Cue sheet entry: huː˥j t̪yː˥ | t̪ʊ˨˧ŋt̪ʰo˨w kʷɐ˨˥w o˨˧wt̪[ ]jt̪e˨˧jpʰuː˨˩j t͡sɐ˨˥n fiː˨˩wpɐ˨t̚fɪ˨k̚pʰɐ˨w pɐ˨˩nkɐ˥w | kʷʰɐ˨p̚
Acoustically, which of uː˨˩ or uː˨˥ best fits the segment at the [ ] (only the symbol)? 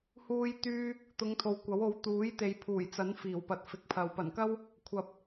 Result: uː˨˥